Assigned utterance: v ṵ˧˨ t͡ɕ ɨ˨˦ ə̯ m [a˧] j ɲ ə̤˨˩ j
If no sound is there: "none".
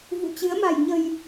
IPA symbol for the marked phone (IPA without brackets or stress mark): a̤˨˩